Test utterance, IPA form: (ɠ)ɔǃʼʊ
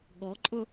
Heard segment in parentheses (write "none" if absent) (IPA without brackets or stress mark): ɠ